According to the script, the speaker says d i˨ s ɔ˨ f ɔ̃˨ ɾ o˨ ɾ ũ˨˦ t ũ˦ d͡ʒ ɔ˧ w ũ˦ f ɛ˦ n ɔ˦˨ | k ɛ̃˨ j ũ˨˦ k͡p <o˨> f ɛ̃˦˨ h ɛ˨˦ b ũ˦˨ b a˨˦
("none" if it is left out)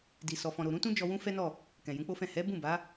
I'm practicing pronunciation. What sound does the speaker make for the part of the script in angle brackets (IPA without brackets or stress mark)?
o˦